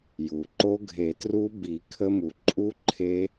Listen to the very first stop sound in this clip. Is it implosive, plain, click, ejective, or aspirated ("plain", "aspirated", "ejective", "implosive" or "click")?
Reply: click